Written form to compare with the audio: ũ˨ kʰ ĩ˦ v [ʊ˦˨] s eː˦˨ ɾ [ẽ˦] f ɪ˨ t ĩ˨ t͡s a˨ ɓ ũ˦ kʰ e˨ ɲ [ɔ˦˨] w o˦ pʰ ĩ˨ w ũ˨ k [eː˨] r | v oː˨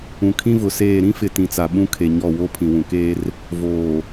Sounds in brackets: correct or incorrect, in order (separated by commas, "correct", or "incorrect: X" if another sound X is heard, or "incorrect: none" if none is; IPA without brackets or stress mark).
incorrect: ʊ˨, incorrect: ĩ˦, correct, incorrect: eː˦